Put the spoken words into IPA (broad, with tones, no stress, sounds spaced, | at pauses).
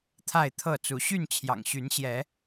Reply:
t̪ʰ a˥˨ ɪ̯ t̪ʰ ɤ˥˨ t͡s u˨˦ ɕ y˥˨ n t͡ɕʰ j ɑ̰˨˩ ŋ ɕ y˨˦ n ɕ j ɛ˨˦